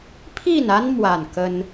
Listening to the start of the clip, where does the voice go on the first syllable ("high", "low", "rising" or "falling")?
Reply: falling